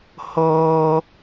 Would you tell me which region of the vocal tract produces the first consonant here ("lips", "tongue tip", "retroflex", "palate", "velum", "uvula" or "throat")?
throat